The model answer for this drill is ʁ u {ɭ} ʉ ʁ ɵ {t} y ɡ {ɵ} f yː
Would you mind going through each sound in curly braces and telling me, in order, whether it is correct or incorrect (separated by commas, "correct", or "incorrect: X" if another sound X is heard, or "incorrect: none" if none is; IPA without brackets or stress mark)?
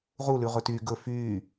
incorrect: l, correct, correct